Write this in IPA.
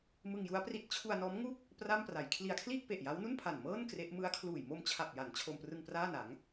m ɯ˧ ŋ j u˦˥ a̯ p r i˦˥ t̚ t͡ɕʰ u˧ a̯ n ɔː˦˥ m ŋ u˥˩ k̚ | p r a˥˩ m p r a˩˦ j kʰ l i˨˩ a̯ kʰ l iː˥˩ k̚ p e˨˩ ʔ j a˦˥ w n u˥˩ n pʰ a˨˩ n m ɤː˥˩ n k r e˦˥ ʔ m ɯ˦˥ a̯ kʰ l uː˨˩ j m o˧ m t͡ɕʰ a˨˩ p̚ j a˩˦ n t͡ɕʰ o˧ m p r ɯ˧ ŋ p r aː˥˩ n a˩˦ ŋ

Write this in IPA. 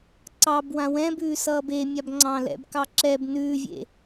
ǀ ɑ b w ã w ɛ̃ b ʉː s ʌː b e mʲ a b ŋ͡ǀ ɑ̃ l ɛ̰ b k ɑ ǁ ɛ b n ʉː vʲ ḛ

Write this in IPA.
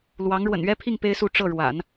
l w ɑ˧˥ ŋ ɻ w ə̰˨˩ n ɥ ɛ˥ pʰ i˥˩ ŋ p e˥ ɪ̯ s u˥˧ ʈ͡ʂ ɤ˥˩ ɻ w a̰˨˩˦ n

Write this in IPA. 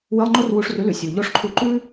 w ɨ˧˥˧ lˠ ŋ͡ǃ o˥ r w u˧ ʂ r ʉ˨˥ l ʉ˩˧ sʲ u˩ ʎ o˧˥˧ ʂ ǃʰ u˧ ǃ ʉ˥

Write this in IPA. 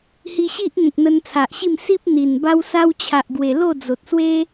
h i˧ ɕ i˦ ʔ ŋ ẽ˨ k̚ n̪ ə˧ n t͡sʰ a˨ ʔ ɕ i˥˧ m s i˦ p̚ n̪ i˨˩ n b a˧ w s a˧ w t͡ɕʰ a˨ ʔ ɡ w e˨˩ l o˥˧ d͡z o˨ t̚ s w e˦

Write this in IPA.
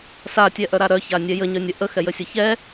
s a tʲ ɛ ʔ œ ɾ a ɾ œ ç a nʲ ɛ j ə ɲ œ nʲ ə ʔ ə x ɛ j ə sʲ ə ç ɛ

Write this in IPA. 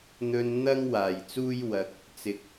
n̪ ɵ˧ n n̪ ɐ˥ ŋ w aː˨˩ j t͡s uː˥ j w ɐ˨ k̚ | t͡s ɪ˨ k̚

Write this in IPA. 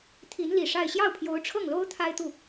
t̪ʰ i˧˥ n l i˨˩ ʂ a˥˧ ɪ̯ ɕ j ɑ˥˩ ʊ̯ pʰ j o˧˥ ʊ̯ ʈ͡ʂʰ ɤ˥˩ ŋ l o˥ ʊ̯ t̪ʰ a˥ ɪ̯ t̪ u˥˩

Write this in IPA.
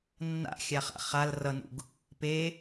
nː a̰ xʲ a χ a̰ χ a l r ʌ n ṵ ɡ | p e

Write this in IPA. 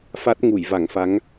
f a˦˥ t̚ ŋ u˧˩ j v a˧˩ ŋ f a˨˦ ŋ

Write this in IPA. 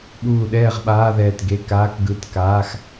ɓ uː˧˩ ɗ ɛː˥˨ ʁ ɓ aː˧˥˧ ð ɛː˧˩ t ɡ e˧˥˧ k aː˧˥˧ k ɡ ɯ˧˥˧ t k aː˧˥˧ x

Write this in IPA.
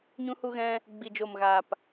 ɲ ũ˧ h u˧ ɣ ɛ̃˧ | ɡ͡b i˨ d͡ʒ o˨ m ɣ aː˨ p

